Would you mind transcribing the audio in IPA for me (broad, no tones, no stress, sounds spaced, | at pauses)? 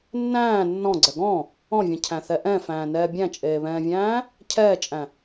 nː æ̃ː nː ɔ̃ ɡ͡ǀ ɛ ɡ ɔ̃ | ɔ̃ vʲ ɛ̃ cʰ æ̃ θ ɛ ʔ ɛ̃ f æ̃ː n ɛː bʲ æ̃ t͡ʃʼ eː β ɛ̃ː vʲ æ̃ː | cʰ ɛː t͡ʃʼ æ̃